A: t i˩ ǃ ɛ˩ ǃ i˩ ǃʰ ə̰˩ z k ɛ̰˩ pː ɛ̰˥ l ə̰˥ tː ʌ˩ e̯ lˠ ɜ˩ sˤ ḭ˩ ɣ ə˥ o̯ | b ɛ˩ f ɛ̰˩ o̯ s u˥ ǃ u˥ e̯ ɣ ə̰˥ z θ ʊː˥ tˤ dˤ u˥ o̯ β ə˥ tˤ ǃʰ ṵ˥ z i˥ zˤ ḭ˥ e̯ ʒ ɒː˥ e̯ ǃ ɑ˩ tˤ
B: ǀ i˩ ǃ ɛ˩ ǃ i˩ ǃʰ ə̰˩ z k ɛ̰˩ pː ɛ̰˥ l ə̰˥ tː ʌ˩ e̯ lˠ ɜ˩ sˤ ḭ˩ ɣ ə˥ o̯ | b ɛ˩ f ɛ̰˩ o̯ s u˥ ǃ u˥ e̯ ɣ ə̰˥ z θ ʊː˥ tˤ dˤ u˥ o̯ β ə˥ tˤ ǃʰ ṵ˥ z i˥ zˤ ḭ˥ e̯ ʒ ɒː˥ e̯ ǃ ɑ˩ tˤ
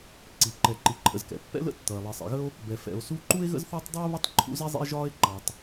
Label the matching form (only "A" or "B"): B